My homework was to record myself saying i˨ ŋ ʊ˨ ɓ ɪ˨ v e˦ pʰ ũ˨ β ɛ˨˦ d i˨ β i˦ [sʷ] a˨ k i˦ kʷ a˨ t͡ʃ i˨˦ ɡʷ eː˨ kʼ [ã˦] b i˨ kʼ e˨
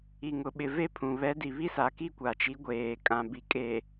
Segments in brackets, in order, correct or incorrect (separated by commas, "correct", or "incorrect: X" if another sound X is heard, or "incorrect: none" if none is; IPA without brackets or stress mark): incorrect: s, incorrect: ã˨